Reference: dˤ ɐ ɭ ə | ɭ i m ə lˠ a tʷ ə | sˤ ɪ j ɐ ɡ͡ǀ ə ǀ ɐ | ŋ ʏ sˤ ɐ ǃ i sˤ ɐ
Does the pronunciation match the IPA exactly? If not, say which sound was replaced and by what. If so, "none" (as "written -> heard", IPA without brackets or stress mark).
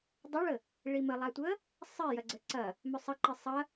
ŋ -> m